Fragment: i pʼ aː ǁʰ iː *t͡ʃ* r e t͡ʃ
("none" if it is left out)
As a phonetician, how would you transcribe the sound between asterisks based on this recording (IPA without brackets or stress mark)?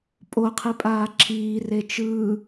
none